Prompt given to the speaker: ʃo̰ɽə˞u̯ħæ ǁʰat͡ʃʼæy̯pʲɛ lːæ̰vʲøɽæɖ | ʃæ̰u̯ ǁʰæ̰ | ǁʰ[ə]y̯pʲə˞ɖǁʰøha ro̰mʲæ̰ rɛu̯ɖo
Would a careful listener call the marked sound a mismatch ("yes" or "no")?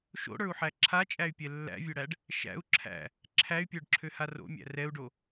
yes